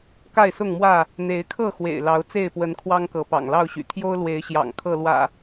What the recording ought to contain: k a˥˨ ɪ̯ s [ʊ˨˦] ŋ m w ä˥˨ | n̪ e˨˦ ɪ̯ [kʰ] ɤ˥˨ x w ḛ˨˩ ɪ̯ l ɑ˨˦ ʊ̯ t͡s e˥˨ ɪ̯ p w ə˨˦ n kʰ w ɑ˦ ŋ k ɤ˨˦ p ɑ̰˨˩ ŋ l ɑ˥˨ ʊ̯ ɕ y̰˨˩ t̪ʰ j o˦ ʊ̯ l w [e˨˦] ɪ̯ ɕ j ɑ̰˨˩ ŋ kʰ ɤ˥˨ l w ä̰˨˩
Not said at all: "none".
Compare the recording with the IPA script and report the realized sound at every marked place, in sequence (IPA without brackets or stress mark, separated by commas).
ʊ˥˨, kʰ, e˨˦